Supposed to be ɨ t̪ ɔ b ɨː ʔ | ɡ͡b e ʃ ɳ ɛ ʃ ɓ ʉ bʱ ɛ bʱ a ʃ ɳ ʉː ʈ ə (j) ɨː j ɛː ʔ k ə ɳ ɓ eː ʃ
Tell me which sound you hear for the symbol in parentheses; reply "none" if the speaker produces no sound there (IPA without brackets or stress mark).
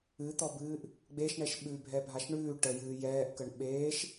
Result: j